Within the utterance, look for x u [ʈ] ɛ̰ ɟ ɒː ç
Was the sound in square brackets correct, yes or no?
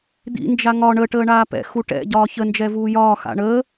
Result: yes